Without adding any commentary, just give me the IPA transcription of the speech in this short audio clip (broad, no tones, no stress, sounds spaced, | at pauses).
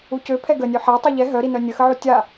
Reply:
u c ø pʰ ɛ ɡ ə nʲ ø ħ a tˤ u ʎ ɛ ɦ œ ɾ i n œ nʲ ə x ə ʕ u tʲ a